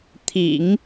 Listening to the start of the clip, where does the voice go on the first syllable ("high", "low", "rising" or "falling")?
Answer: low